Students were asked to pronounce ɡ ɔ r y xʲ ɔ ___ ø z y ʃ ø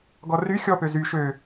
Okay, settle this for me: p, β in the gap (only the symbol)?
p